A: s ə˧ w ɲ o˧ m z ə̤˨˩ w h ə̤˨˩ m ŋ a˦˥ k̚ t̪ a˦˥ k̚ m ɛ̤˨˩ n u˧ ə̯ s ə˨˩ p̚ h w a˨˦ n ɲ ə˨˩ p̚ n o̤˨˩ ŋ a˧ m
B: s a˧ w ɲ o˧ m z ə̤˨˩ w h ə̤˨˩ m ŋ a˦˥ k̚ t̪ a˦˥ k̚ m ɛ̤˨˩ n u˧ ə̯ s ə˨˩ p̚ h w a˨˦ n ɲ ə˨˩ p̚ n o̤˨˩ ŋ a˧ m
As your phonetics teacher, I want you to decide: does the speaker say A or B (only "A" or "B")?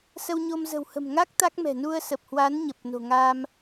A